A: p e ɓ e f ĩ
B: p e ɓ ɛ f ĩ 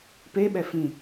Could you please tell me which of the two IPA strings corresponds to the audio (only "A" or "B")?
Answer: B